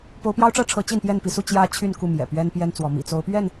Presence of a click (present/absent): absent